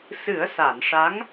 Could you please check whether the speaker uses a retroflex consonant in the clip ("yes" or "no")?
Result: yes